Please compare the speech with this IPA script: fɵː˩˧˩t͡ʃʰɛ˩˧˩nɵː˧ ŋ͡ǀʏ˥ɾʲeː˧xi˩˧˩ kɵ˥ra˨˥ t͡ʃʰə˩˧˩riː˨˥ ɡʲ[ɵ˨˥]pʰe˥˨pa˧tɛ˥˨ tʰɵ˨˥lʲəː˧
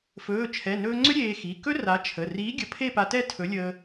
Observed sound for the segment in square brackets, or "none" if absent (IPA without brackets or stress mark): ə˨˥